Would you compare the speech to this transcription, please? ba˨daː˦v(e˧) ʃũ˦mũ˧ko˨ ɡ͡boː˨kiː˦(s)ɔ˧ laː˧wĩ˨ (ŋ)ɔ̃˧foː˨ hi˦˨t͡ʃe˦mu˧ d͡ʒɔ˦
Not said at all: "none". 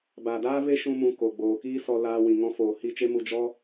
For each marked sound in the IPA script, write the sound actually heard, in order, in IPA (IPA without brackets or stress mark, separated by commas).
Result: e˦, s, ŋ